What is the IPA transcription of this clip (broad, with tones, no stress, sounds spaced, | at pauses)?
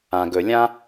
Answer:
ã˨ ɡ ɵ˨ lʲ ã˦